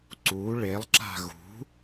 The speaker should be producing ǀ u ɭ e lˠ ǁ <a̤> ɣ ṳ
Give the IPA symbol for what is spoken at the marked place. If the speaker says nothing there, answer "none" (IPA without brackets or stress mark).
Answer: a̤